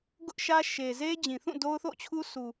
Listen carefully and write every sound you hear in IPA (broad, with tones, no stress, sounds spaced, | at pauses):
ɡ ʊ˦ ʔ ʃ ä˦ ʃ e˨ z e˦ d͡ʑ ĩ˨ θ ũ˦˨ d o˦ ʊ̯ θ o̰˦˨ t͡ɕʰ u˦ sʰ u˨